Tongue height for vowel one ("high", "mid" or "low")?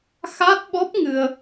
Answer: low